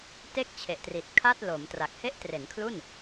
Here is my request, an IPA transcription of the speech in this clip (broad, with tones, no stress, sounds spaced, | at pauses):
t e˥˩ k̚ t͡ɕʰ e˨˩ ʔ t r i˨˩ t̚ kʰ a˥˩ t̚ l o˩˦ m t r a˨˩ k̚ h e˦˥ ʔ t r e˩˦ n kʰ l u˥˩ n